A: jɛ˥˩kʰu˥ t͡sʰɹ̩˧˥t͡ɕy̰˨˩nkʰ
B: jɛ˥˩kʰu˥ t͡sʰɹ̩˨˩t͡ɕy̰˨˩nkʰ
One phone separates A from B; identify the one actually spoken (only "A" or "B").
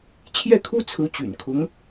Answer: A